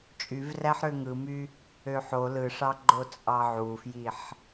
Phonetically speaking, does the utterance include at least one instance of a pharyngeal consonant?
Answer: yes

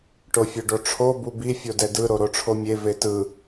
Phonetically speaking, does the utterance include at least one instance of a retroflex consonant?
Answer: yes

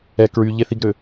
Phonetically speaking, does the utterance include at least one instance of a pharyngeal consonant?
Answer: no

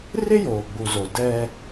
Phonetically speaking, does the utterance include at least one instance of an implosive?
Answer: no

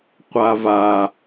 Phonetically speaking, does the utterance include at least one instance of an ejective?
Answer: no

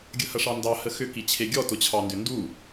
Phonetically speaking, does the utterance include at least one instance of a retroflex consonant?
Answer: yes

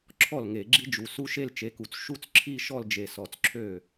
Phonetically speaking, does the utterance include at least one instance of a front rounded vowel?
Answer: yes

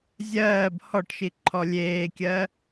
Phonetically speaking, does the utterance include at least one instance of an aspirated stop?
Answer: yes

